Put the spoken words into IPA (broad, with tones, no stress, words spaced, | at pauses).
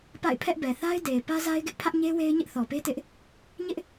pa̰˦˨ɪ̯pʰɛ˦ʔ bɛ˨ θa˦ɪ̯ de˨ɪ̯ pä˦za˦ɪ̯ɡɪ˦ʔ pʰä˦ʔɲe˦ we˦ɪ̯ɲɪ˦ʔθɔ˨pe˦ tɪ˦ʔ | ɲɪ˦ʔ